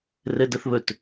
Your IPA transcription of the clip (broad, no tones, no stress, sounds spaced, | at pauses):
r ɘ d ə θ β ɵ t